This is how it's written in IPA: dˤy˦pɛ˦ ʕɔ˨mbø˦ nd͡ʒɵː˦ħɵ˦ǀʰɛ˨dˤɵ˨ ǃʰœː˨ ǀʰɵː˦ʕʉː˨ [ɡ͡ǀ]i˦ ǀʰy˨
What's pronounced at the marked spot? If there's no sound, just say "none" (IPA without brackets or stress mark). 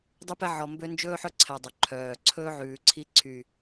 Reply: ǀʰ